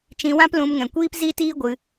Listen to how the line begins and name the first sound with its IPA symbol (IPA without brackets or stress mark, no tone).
t͡ʃ